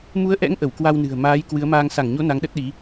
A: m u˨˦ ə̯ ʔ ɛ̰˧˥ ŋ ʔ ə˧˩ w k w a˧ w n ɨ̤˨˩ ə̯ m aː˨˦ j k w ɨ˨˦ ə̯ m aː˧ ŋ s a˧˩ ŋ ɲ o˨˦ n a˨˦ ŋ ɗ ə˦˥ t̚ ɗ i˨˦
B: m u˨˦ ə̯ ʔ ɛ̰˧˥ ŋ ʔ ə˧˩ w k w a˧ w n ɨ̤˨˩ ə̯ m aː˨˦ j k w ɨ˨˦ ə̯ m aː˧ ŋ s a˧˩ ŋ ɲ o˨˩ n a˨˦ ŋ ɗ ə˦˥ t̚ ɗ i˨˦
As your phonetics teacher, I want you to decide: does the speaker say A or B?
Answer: A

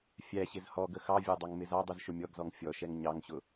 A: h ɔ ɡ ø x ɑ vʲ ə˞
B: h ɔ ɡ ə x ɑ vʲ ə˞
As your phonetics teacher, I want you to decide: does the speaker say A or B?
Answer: B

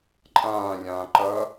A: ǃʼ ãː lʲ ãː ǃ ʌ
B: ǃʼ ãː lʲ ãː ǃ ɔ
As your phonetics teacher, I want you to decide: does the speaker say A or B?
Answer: A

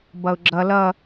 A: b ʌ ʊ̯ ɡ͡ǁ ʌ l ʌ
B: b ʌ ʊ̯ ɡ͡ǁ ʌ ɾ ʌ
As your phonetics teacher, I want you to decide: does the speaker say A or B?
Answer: A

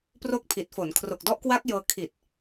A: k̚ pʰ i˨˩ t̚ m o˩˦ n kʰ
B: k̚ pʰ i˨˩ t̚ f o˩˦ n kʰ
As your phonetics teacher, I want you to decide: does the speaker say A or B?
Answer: B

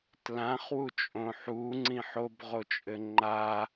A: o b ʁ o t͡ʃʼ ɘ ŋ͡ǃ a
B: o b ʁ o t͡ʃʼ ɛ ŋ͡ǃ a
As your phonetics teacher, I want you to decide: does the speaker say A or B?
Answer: A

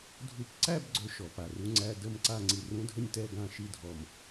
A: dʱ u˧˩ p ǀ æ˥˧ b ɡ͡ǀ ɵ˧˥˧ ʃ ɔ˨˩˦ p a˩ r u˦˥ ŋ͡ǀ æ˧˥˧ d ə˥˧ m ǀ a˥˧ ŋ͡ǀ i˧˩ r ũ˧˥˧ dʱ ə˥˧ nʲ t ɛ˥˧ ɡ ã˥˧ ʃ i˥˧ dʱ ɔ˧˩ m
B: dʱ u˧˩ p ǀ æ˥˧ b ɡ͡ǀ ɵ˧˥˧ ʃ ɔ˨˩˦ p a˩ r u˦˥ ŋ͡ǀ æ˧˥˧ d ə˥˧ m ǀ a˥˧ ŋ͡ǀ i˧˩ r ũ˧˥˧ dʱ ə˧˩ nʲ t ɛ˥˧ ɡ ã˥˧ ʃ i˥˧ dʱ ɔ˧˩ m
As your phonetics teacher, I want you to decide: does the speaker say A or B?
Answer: A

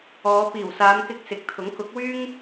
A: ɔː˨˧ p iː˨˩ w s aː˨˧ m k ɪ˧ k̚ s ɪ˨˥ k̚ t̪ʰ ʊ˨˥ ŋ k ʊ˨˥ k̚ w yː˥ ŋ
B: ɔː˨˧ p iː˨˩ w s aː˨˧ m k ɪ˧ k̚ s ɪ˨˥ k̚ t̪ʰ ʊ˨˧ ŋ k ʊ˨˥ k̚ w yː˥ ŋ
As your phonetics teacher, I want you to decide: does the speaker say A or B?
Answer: A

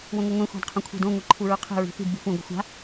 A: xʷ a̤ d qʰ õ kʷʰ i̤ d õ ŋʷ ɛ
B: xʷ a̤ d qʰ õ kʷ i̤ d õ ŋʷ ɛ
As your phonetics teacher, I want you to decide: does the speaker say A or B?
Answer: A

